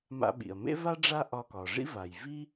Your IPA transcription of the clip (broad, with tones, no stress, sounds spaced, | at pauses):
m a̰˧ ɓ ḭ˩ ɐ̯ m ḛ˥ v a˥ ɖ͡ʐ a˥ ʔ ɒ˧ k ɒ˩ ʐ ḭ˥ v a˩ j v i˥